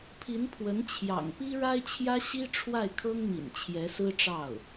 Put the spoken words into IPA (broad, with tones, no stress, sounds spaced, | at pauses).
pʰ i˧˥ n pʰ w ə˧˥ n t͡ɕʰ j ɑ̰˨˩ ŋ p i˥ ɻ a˥ ɪ̯ t͡ɕʰ j ä˥ ɕ i˥ ʈ͡ʂʰ w a˥˩ ɪ̯ kʰ ɤ˥ ŋ m ḭ˨˩ n t͡ɕʰ j ɛ˧˥ s ɹ̩˥ ʈ͡ʂ ɑ˥˩ ʊ̯